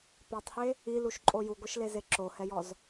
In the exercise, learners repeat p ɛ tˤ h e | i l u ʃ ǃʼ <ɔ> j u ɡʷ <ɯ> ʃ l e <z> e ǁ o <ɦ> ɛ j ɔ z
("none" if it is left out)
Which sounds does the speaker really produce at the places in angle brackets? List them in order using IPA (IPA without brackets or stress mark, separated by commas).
o, ɯ, z, h